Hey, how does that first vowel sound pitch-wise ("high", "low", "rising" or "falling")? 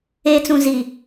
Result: high